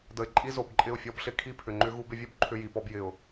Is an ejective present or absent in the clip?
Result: present